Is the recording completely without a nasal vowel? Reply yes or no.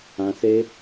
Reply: no